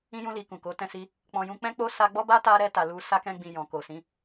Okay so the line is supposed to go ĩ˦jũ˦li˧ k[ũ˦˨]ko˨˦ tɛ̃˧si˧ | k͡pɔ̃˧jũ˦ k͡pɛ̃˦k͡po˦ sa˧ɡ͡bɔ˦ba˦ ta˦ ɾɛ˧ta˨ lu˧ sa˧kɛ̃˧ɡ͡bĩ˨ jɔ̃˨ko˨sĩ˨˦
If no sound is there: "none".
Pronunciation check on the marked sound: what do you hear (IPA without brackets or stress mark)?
ũ˨